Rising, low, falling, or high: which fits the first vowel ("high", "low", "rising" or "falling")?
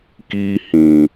high